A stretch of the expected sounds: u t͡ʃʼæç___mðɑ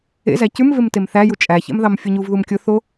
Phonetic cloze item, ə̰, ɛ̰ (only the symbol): ɛ̰